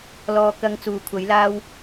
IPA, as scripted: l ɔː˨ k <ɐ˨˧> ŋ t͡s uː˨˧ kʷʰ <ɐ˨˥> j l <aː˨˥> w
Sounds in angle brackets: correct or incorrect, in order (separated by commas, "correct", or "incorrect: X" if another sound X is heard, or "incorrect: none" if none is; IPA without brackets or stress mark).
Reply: correct, correct, incorrect: aː˥